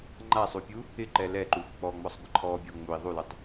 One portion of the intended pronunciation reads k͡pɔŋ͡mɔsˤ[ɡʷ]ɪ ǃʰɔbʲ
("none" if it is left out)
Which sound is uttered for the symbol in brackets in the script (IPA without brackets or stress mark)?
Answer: ɡʷ